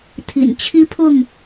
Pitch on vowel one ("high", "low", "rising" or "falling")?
low